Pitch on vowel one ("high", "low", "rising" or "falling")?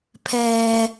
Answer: high